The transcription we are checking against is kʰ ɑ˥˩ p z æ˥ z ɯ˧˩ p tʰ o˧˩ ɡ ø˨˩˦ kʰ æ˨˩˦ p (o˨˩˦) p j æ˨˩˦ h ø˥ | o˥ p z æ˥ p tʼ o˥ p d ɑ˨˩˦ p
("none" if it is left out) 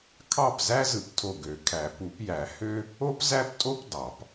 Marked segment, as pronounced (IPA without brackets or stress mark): u˨˩˦